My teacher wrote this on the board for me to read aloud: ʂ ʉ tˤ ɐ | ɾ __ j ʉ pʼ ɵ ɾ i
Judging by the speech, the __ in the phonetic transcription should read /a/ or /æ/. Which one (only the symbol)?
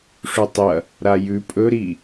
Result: a